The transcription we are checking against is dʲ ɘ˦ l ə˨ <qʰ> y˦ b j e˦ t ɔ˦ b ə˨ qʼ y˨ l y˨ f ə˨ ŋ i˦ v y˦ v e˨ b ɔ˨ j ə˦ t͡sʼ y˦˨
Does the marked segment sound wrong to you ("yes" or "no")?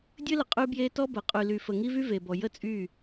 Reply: yes